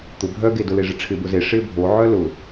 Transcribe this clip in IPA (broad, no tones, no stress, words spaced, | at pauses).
t̪ʊ bʱœɡe dʊleʐɪʈ͡ʂʰɪ bʊze ʂɪ bʱoʕœ lʊ